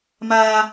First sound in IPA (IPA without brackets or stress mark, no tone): m